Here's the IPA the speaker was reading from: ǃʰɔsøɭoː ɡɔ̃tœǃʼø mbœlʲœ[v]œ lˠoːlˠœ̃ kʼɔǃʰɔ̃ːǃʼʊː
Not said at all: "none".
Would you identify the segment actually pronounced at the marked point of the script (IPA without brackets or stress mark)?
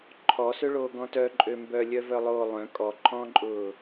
v